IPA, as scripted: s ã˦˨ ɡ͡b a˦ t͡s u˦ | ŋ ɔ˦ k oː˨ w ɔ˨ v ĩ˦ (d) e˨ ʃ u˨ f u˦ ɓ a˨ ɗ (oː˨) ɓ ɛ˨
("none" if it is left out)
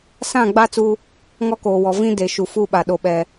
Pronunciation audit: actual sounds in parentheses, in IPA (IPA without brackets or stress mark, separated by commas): d, o˨